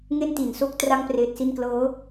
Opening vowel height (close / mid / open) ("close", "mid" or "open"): mid